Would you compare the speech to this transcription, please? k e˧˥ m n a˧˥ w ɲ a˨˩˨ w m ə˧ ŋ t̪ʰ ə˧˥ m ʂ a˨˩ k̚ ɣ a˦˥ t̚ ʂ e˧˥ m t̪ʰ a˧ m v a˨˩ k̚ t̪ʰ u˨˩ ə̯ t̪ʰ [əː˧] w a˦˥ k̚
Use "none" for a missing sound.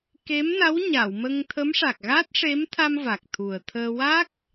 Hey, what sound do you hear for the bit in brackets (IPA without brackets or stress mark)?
əː˧